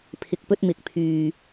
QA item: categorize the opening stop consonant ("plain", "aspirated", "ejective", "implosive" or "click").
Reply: aspirated